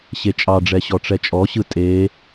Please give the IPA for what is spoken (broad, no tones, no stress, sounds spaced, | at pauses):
ɕ e t͡ʃʼ ɑ ɖ͡ʐ ɛ ɕ ɔ ʈ͡ʂ ɛ t͡ʃʼ ɔ ɕ ɯ tʼ e